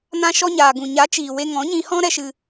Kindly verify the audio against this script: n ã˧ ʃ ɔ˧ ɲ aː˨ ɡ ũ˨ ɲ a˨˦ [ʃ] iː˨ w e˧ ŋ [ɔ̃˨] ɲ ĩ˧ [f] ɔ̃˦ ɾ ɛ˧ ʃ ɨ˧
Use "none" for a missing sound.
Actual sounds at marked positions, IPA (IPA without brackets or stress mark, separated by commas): t͡ʃ, ɔ̃˨˦, h